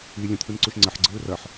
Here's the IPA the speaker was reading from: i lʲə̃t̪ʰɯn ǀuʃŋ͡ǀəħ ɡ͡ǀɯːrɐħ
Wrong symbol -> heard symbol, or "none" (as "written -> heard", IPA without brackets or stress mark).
none